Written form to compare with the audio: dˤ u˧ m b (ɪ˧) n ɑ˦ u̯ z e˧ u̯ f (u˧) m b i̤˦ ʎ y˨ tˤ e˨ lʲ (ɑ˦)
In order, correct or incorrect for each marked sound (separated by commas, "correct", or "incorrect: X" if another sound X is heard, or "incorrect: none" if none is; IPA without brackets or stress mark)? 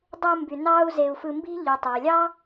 incorrect: y˧, incorrect: ɯ˧, correct